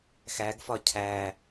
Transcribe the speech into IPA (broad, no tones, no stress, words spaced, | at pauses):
xæɡfɒ cʰæ